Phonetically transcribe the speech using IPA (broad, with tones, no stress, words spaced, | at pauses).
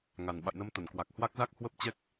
ŋa˨˩n ɓa̰˧˨jnə˧mt̪ə˧˩nkwa˨˩k̚ hwa˦˥k̚za˦˥k̚hwə˦˥p̚t͡ɕɛ˦˥k̚